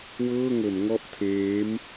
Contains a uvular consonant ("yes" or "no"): no